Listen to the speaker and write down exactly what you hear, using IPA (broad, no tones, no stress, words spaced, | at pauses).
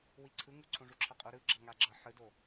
wiǀʰɯŋu ǀʰõʐuǁʰʌqʼo ɾɯɡ͡ǁʌ ŋaɡ͡ǁʌ ħɯdo